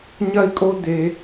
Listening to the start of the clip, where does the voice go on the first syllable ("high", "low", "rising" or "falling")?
high